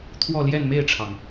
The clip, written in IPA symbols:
t̪ʰ w ɔ˥˧ l j ɛ˥˧ n m e˥˩ ɪ̯ ʈ͡ʂʰ ɑ˩ ŋ

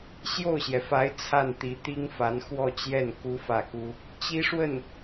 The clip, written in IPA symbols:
ɕ j o˥˩ ʊ̯ ɕ j ɛ˩ f a˧˥ ɪ̯ t͡sʰ a˥˩ n t̪ i˧˥ t̪ i˥ ŋ f a˧˥ n x w ɔ˥˧ t͡ɕ j ɛ˥˩ n k u˥ f ä˥˩ k u˥ | t͡ɕ i˥ ʂ w ə˥˩ n

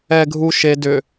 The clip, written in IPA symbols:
ɛ ɡʱ u ʃ e d ʏ

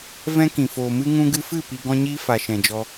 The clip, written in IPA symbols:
v ɛ̃˧ k ĩ˨ f oː˨ m ɨ˧ ŋ ũ˧ ɡ ɨ˧ f ɨ˦˨ p i˧ ɡ ɔ̃˦ ɲ iː˦ f a˨ ʃ ɛ̃˨ d͡ʒ ɔ˧

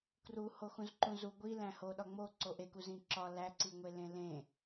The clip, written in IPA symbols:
k r u h o x ũ z ǃ ũ z u ɡʷ i l æ̃ h o ɗ ɒ ŋ͡m o ǀ o ʔ e k u z ĩ ǁ ɒ l æ ǀ i ŋʷ e l ẽ l ẽ

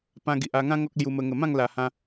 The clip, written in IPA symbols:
p ã˧ ɡ i˨ ʔ a˧ ŋ ã˦ ŋ ɔ˦ k̚ l j u˧ m ə˧ ŋ ə˨˩ m ã˥˧ ŋ l a˨˩ h ã˧

